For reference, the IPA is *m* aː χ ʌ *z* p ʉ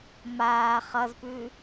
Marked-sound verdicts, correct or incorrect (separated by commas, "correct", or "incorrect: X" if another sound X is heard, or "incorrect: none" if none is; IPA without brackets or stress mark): correct, correct